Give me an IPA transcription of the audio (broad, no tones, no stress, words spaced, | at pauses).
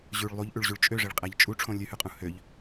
ʑʉɭ lˠuʎʔʉɭʑʉɭ t͡ʃʼøʐeɭqʼæʎ t͡ʃʼu ʈ͡ʂʰõlʲʉhʉqʼũ høʎ